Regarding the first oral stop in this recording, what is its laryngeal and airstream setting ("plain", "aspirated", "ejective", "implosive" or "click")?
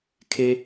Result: aspirated